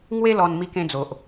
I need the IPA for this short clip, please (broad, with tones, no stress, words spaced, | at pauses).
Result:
ŋwe˦lɔ˧n mi˧kẽ˧d͡zo˨ʔ